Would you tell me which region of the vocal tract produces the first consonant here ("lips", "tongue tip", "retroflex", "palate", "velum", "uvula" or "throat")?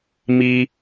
lips